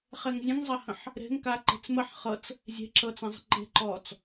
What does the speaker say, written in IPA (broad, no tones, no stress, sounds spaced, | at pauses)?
χ e ŋ zʲ ə̃ ŋ zˤ ɐ h ə̃ ħ | ɾ e̤ ŋ k a ǃ e̤ t͡s m ə ħ χ ɤ t͡s | zʲ e̤ ǁ ɤ t͡s ɐ̃ zˤ ə̤ ǃ e̤ ǃ ɔː t͡s